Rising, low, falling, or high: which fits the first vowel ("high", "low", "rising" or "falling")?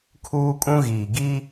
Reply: high